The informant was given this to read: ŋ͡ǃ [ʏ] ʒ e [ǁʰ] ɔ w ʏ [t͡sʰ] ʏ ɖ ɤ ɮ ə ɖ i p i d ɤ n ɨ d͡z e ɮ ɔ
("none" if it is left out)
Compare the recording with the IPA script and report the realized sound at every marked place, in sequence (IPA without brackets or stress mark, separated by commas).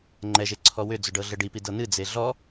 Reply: ɛ, ǀʰ, d͡z